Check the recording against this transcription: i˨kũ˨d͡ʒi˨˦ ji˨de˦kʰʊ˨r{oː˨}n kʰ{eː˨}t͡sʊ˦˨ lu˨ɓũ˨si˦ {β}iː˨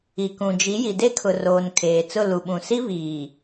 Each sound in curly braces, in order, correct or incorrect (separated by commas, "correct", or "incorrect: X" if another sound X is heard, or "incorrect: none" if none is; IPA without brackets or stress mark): correct, correct, correct